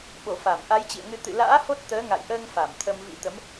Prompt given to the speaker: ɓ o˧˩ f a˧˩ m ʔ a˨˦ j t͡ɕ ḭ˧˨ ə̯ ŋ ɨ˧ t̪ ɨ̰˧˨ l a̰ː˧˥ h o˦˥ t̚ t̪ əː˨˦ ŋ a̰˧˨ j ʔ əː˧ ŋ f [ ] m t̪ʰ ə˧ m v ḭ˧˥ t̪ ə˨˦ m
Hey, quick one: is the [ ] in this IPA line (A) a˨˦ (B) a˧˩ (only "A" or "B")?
B